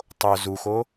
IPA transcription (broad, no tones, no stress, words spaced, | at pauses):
tˤo zuxo